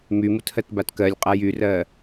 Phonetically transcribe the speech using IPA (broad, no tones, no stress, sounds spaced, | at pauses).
m y m u t h ɜ t b a t k ɜ lʲ qʼ a j y r ɜ